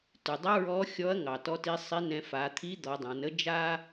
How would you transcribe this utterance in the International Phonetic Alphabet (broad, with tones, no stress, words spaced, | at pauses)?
tʉ˩dˤə˧˥ ɹɔ˧˥xʲɔ˧˥ɐ̯ŋɑ˩ tɔ˧˥ti˧˥sˤi˧˥nɛ̃˧ fa˩˧t̪ʰi˧˥d̪ɔ˩˧ dˤã˩˧nə˥d͡ʒa˥